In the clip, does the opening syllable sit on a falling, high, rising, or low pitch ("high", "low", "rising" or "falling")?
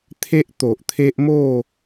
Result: high